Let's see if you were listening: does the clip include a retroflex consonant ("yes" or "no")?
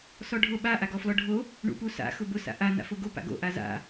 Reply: yes